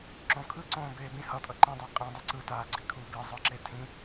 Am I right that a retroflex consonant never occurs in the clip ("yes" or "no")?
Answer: yes